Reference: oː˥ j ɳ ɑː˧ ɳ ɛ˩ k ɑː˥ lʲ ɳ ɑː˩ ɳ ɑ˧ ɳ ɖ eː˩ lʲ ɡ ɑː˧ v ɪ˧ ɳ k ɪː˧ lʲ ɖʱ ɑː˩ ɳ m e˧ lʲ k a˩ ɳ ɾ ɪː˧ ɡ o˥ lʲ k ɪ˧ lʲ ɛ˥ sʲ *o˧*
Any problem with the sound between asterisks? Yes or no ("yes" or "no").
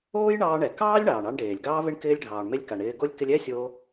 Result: no